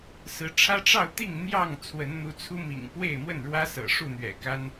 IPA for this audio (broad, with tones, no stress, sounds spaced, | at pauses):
s ɹ̩˨˦ ʈ͡ʂʰ ä˦ ʈ͡ʂ ɑ˥˨ ʊ̯ t̪ i˥˨ ŋ n̪ j ɑ˥˨ ŋ t͡sʰ w ə˨˦ n n̪ u˨˦ t͡sʰ u˦ m ḭ˨˩ ŋ p w e˥˨ ɪ̯ m w ə˥˨ n ɻ w ä˦ s ɤ̰˨˩ ʂ u˥˨ n̪ ɥ ɛ̰˨˩ k a˦ n